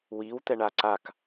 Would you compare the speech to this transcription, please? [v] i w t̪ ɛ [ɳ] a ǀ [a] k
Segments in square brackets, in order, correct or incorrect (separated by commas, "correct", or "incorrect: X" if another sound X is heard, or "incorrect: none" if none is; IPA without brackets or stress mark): incorrect: w, correct, correct